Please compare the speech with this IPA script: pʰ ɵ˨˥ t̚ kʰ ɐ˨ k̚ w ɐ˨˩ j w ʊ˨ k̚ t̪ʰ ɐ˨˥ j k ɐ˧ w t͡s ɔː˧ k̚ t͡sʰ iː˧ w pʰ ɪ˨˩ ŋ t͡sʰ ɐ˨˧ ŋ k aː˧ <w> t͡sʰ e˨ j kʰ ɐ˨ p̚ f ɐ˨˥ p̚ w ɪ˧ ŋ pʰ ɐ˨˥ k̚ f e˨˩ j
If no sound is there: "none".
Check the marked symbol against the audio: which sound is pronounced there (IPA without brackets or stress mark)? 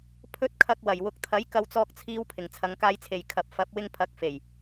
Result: j